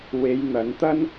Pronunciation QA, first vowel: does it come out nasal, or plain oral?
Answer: oral